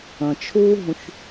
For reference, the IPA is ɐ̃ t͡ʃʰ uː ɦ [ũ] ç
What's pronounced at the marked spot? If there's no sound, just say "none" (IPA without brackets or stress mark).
ũ